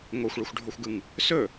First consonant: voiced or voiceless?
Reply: voiced